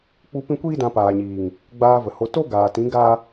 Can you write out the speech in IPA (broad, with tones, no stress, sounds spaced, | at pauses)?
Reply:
k͡p u˧ p ĩ˦ kʷ iː˦ d ã˧ p aː˨ ɲ iː˨ ŋ | ɡ͡b aː˧ v ə˨ h o˧ t o˦ ɡ aː˨ t ĩ˨˦ ɡ aː˦